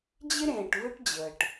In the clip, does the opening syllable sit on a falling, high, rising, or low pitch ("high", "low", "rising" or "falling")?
high